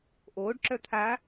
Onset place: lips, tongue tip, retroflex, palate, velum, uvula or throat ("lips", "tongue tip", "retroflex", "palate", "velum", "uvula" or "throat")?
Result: throat